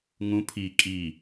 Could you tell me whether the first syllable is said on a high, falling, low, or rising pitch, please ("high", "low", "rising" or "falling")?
rising